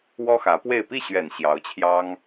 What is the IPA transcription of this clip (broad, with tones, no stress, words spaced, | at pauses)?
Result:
wɔ˥xä˧˥pwe˥˧ɪ̯ pi˥˩ɕɥɛ˨˩n ɕjɑ˧˥ʊ̯t͡ɕʰjɑ˥ŋ